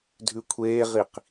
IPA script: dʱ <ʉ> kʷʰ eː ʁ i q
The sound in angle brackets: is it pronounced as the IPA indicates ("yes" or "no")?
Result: yes